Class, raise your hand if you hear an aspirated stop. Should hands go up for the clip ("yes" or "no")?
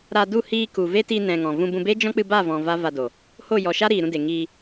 no